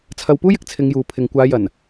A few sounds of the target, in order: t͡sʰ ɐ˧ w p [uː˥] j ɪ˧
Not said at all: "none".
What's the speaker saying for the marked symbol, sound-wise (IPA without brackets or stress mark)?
uː˥